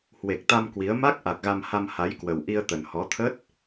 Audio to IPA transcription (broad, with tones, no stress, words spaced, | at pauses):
hwe˨˩k̚t̪a˧m kwi˨˦ə̯ ma˦˥k̚ʔa˨˩k̚ ɣa˧mha˧mha˨˦jkwə˨˩w ʔi˧ə̯t̪ə˨˩nhɔ˨˦t̪ʰə˦˥t̚